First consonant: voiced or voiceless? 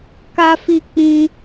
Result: voiceless